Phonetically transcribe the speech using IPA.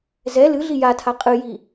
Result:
z ɛ l ɨ ɮ i j a tʰ a qʼ ɨ j i

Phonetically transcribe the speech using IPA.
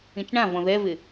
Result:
ĩ t͡ʃ ɳ ã v ɔ̃ ð ɛ v ɪ

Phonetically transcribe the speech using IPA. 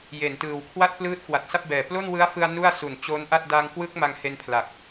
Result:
j e˨˩ n t ɯː˨˩ w kʰ w a˥˩ t̚ p l ɯː˦˥ t̚ k w a˨˩ t̚ s a˥˩ p̚ b ɛː˨˩ p l o˥˩ n w ɯ˦˥ a̯ f ɯ˧ a̯ n u˥˩ a̯ s u˨˩ n t͡ɕ oː˦˥ n ʔ a˥˩ t̚ d a˧ ŋ k w ɯ˦˥ k̚ m a˧ ŋ h e˧ n pʰ l a˨˩ k̚

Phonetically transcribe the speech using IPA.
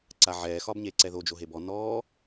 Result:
ǀ a ʕ ɛː x ɒ b ɲ eː ǀ ɛ ð o d͡ʒ o ɦ e b ɔ n ɔː

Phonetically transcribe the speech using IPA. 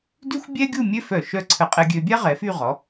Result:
d y˥ xʷ bʲ ɛ˥ ɡʲ u˥˧ mʲ ø˥ f œ˧˩ ʃ œ˥˧ ǀʰ ə˧ qʼ ɛ˧ ɡʲ ø˧ bʲ a˥ ʁ ɛ˩˧ f y˥˧ ʁ ɔ˩˧

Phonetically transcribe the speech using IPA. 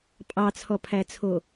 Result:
pʼ ɑ t͡sʰ ɔ pʰ æ t͡sʰ o

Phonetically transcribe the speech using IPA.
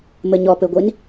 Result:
m ɘ ɲ ɔ p ɘ ɡʷ i n

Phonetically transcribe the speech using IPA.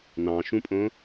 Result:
n ɑ̃ ʃ ũ pʼ õ

